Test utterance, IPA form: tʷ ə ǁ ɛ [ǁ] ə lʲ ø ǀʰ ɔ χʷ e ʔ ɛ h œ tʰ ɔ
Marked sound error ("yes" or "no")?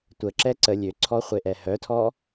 yes